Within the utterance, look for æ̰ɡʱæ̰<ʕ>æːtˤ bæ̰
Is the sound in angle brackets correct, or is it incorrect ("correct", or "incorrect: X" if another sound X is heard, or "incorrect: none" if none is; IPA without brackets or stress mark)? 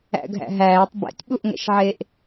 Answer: incorrect: ɦ